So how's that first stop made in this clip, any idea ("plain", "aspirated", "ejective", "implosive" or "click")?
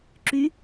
click